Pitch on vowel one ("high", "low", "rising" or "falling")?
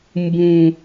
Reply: high